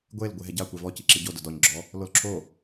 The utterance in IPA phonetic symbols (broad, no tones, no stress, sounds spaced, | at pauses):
ɡʷ e l ɡʷ e ɦ ɛ ɟ a kʷ e v ɔ c i ǁ i ɟ o d ʊ d ɔ ɲ ɡ͡ǁ ɔ | l o l ǁʰ o